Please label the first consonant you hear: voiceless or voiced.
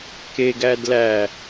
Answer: voiceless